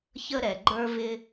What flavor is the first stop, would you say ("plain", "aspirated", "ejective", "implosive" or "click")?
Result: click